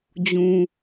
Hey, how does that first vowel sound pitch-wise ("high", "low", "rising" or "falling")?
low